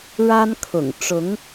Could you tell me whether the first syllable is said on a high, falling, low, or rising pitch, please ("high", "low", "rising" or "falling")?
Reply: high